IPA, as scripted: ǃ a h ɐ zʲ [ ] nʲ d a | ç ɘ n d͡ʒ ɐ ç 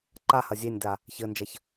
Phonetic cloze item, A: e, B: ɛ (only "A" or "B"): A